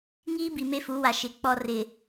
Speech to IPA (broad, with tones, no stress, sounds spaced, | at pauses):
ŋ iː˦ b i˨ m e˦ f u˨˦ w a˨ ʃ ɪ˨˦ k͡p ɔ˦ r ɪ˨